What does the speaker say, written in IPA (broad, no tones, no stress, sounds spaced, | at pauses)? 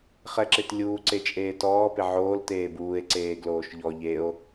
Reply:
χ ɛ ǁ ɪ t lʲ uː ǀ e t͡ʃʼ eː t ɔː p ɪ ʕ oː l t eː b uː e̯ ǀ eː ɡ l oː ʃ ʎ ɔ ʎ e o̯